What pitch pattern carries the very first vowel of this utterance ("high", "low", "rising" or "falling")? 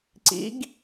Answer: rising